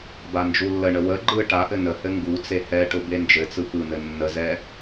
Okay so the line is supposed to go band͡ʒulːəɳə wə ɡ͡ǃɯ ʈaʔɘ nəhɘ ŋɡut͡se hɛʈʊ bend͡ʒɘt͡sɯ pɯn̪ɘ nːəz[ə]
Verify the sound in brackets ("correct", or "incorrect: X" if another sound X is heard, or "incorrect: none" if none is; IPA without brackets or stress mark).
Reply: incorrect: ɛ